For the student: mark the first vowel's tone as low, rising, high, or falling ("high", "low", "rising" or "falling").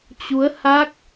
rising